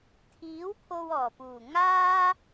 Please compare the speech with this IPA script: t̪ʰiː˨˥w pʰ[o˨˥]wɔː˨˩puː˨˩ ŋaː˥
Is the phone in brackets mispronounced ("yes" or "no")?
yes